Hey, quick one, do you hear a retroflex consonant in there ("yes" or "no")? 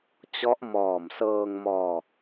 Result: no